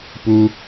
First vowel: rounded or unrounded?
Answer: rounded